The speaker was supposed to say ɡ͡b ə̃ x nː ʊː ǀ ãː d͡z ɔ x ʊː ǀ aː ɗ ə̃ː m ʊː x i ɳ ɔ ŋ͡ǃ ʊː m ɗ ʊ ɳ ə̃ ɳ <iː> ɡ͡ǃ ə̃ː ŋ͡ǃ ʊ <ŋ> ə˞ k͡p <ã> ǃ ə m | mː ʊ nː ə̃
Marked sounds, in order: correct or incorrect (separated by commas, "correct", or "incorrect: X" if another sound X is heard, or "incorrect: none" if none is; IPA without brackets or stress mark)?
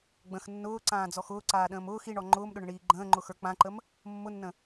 correct, incorrect: x, correct